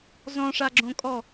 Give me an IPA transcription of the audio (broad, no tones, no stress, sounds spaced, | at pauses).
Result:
z ɔ̃ ʂ a ɡ͡ǁ õ kʼ ɔ